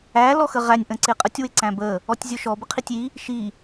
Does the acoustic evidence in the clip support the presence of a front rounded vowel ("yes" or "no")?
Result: no